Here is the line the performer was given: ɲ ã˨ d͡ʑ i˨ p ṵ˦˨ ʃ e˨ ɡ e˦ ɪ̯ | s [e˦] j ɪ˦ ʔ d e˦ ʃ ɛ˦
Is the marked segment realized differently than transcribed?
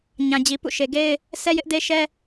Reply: yes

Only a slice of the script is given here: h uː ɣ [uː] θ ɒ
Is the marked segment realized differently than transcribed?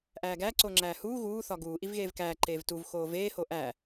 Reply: no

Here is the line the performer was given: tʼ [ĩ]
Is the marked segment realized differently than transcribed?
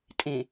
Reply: yes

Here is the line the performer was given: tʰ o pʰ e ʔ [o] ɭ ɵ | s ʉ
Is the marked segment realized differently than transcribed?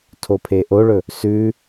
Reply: no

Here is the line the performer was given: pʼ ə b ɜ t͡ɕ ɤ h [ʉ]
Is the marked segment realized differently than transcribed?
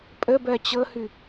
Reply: no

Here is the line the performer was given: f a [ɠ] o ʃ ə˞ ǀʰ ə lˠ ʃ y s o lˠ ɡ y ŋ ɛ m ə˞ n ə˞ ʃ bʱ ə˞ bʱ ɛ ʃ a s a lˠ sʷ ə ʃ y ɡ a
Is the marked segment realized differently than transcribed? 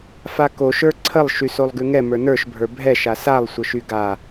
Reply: yes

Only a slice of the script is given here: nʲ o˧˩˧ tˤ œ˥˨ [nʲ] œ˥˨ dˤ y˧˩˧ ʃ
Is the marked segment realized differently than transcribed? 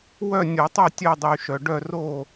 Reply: yes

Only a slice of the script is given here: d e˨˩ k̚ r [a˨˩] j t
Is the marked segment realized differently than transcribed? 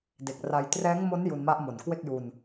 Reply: yes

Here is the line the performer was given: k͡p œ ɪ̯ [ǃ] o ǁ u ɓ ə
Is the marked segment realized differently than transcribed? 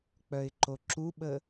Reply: no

